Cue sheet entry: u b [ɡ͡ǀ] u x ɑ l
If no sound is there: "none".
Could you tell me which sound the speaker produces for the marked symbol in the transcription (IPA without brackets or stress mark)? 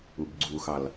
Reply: ɡ͡ǀ